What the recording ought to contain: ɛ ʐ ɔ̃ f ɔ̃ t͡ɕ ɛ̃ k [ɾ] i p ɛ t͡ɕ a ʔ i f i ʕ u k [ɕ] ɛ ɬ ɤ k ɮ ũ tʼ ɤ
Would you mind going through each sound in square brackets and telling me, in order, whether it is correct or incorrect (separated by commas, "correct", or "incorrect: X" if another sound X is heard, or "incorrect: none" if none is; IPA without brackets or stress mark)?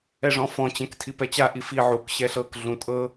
incorrect: tʰ, correct